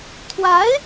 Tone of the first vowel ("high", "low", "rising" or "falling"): rising